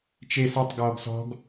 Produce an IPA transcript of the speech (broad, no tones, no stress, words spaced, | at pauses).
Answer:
t͡ʃes ɐtˤ ɡɔːɡsɔ̤ɡ